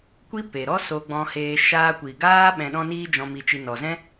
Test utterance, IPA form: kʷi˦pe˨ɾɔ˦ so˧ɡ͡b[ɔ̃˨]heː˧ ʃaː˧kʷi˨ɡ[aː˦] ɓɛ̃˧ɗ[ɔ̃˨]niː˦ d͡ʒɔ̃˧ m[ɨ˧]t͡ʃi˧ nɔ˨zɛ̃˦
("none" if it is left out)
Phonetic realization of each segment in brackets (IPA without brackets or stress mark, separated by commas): ɔ̃˧, aː˦, ɔ̃˦, i˧